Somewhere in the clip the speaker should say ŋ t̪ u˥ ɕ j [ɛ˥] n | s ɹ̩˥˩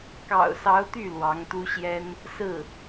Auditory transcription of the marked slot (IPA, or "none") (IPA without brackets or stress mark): ɛ˥